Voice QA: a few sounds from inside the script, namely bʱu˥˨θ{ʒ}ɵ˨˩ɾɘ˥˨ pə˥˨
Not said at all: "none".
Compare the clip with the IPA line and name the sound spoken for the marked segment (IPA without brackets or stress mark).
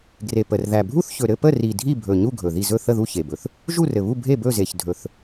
ç